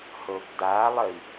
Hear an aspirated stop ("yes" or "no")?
no